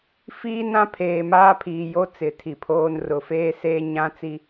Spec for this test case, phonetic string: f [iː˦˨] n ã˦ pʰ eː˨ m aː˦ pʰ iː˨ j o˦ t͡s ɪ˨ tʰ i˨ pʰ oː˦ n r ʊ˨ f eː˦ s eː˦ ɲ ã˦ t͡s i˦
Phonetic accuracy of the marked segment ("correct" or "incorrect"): incorrect